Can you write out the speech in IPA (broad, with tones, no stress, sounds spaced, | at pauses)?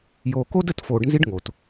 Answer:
j oː˨ k o˦ d ə˦˨ t f oː˨ ɖ n z i˦ ɖ ŋ o˨ t